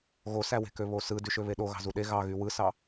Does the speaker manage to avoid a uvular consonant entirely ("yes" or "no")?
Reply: yes